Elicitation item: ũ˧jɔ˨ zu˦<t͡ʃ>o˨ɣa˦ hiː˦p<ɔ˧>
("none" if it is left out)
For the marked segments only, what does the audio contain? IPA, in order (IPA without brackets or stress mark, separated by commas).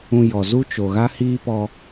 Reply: t͡ʃ, ɔ˧